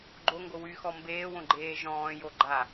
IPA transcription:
ɡ͡ǃoŋɡo wyxɔ mbeːwõ ɡ͡ǃeːʒɔ̃ːjo ɡ͡ǃa

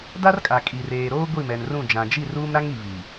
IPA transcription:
da˦rkʼa˨ kʼi˨reː˨ɾoː˦ ɡʷi˦˨mɛ˨nrũ˦˨ d͡ʒã˨d͡ʒi˦˨r uː˦mɾa˦ŋi˨ vi˨

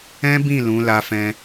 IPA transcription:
ɛ̃˦bĩ˦˨ lũ˨˦la˧fɛ̃˧

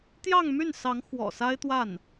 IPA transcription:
t̪jɑ˥˧ŋmy˥˩nsɑ˧˥ŋ xwɔ̰˨˩sa˥ɪ̯t̪wa˥˩n

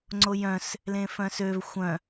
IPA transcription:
ŋ͡ǀojœ̃s | lẽfœ̃søv xʷœ̃

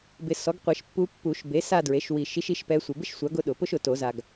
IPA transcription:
bɪ˨ sɔ˩˥ɡqʷi˨˩˦ʃpːu˧˥ pːu˨˩˦ʃbe˩˥ sa˥˧dɹe˩˥ʃ wi˨ ʃi˧˥ʃi˧˥ʃpɛ˧˥ sʷɪ˨ bɪ˥ʃsʷa˩˥ɡ ʊ˧˥ɗʊ˨˩˦ pʊ˥ʃʊ˨˩˦to˨˩˦za˨ɡ

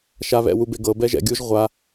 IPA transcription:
ʃaβɛ̰ wubeɡɤbɛ ʒɛ̰ ɡʲuʒ ʁʷa

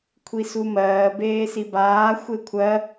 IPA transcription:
kʷʰisumɜː beːsibaː xʷekʷʰɜ

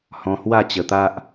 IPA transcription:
hɔ̃˧hwa˥˧ t͡ɕə˨˩t̪a˦ʔ

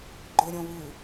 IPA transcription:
ɡ͡ǃøɾʲõβʉ

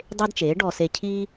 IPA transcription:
dˤe˥dt͡ʃeː˩˥ ɖɔː˧se˧cʰiː˥

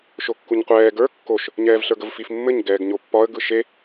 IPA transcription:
ʃokːuɲqʷɛː ɡə˞ kːoʃ | ɲɛːvɬə˞ɡəvfif mːɘɲ ɡɛːɡɲopːɒə̯ ɡɯʃe

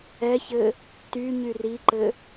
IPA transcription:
ɛçɘ | ty ɲyriǃɘ

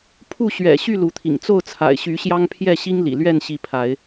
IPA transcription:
pʰu˥˨ɕɥɛ̰˨˩ɕy˥˨ lu˨˦t̪ʰḭ˨˩ŋ t͡so˥˨ʊ̯t͡sʰa̰˨˩ɪ̯ɕy˨˦ɕjɑ˦ŋ pʰjɛ˥˨ɕi˦ŋlḭ˨˩ lɥɛ˥˨nɕi˨˦ pʰa˨˦ɪ̯

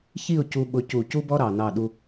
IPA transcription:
çi˥˧ʊ̯cu˧ɓʊ˧ cu˧˩cu˥bɔ˥ɾɑ˧˩ nɑ˧˩ɗu˧

